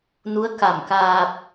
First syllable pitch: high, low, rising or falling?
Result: rising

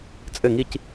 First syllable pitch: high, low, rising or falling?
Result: falling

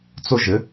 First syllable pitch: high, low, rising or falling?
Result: high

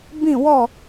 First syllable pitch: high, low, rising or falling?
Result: falling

